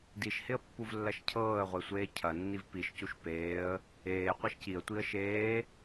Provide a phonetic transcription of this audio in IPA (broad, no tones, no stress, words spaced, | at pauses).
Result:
diʃhɪə̯pːuvlːɐʃ cʰɤːə̯ʁʷesʷeː cʰɐnːiv piʃcuʃ peːə̯ | eː qʷɐʃciə̯ tʷiə̯ʃeː